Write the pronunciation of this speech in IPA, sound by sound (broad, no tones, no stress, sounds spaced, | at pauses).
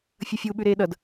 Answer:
fʲ ʌ fʲ u ɓ ʉ ɾ eː ɗ ʌ d